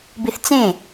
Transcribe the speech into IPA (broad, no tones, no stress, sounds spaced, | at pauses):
b i θ t͡s ẽ